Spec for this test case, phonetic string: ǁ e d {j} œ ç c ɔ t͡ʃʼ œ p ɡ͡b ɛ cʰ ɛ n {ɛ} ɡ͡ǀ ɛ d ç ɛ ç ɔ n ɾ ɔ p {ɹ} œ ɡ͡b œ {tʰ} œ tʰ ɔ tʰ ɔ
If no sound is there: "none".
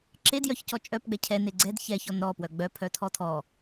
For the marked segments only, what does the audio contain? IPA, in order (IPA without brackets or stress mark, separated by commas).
j, e, w, pʰ